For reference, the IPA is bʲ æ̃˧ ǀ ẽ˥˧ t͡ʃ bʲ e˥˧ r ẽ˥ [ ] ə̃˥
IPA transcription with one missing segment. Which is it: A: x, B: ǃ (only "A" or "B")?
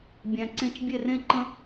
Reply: B